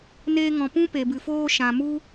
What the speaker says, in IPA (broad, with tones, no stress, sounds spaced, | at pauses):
n eː˧ ŋ ɔ̃˨ p ũ˦ p e˨ b ɨ˨ f oː˦ ʃ ã˨ m u˦